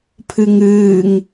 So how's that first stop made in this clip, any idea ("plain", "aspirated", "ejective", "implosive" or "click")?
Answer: aspirated